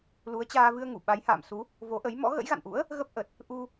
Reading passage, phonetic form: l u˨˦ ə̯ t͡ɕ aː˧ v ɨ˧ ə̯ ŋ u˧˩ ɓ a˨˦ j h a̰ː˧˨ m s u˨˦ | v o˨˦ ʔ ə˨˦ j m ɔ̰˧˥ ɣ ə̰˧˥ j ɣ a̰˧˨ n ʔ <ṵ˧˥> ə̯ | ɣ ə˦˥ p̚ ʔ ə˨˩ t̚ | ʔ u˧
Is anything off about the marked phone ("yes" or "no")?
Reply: no